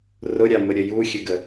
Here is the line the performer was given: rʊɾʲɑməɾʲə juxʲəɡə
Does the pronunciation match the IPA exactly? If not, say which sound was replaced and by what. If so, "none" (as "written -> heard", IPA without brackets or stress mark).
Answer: none